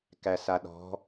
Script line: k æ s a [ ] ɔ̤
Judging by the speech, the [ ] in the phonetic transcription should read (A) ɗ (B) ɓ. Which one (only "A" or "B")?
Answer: A